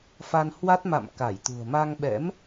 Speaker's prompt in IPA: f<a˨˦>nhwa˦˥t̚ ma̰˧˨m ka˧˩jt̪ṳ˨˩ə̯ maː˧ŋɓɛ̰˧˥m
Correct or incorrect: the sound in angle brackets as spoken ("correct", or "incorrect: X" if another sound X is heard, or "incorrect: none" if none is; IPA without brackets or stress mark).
incorrect: a˧